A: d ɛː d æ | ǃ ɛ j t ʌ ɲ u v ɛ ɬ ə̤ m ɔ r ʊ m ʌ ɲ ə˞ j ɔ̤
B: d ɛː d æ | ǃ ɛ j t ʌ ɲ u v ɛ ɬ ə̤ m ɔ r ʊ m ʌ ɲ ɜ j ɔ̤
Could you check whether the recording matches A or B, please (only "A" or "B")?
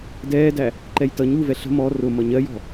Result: B